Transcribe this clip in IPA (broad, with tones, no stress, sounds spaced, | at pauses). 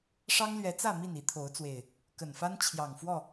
ʂ ɑ˦ ŋ l ɥ ɛ˨˦ t͡s ä˥˨ m i˥˨ n i˨˦ t̪ʰ o˨˦ ʊ̯ t͡s w e˨˩ ɪ̯ | k ə˨˩ n f a˦ n t͡ɕʰ j ɑ˨˩ ŋ f w ɔ˥˨